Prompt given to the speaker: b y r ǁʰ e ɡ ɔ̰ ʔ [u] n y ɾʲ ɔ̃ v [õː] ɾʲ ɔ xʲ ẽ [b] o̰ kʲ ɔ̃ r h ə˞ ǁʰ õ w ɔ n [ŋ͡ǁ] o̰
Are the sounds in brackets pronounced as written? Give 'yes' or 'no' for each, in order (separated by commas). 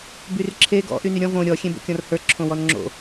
no, no, yes, yes